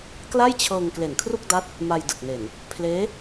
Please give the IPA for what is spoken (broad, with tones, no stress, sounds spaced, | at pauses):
k l a˥˩ j t͡ɕʰ ɤː˧ ŋ k l e˨˩ n kʰ r u˥˩ k̚ d a˦˥ t̚ | m a˧ j d ɯ˨˩ k̚ n e˨˩ n | pʰ l eː˦˥